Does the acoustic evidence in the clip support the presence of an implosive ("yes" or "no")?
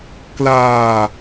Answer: no